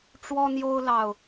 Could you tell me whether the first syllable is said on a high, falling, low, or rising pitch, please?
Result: high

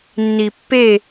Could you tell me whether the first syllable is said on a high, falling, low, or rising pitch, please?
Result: low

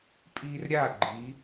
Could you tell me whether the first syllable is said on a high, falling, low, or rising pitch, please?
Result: high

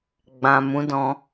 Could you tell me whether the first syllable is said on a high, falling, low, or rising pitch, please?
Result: low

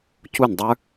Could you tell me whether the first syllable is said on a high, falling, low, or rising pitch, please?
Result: falling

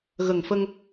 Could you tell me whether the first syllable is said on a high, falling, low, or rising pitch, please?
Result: low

